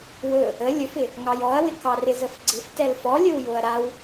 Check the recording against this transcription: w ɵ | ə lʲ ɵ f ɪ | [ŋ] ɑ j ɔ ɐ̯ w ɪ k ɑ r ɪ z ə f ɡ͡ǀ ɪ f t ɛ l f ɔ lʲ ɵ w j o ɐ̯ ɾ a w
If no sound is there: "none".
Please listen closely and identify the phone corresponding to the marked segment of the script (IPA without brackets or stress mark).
ŋ